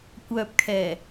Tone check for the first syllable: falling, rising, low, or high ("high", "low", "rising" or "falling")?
low